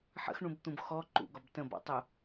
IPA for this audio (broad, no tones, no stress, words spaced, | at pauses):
ħə̰xɳũbt̪ũb xɔ ǃṵɡɒb tə̃bɔ̰tˤu